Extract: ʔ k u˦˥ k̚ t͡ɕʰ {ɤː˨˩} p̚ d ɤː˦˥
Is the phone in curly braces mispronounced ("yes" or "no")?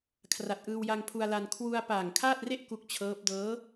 yes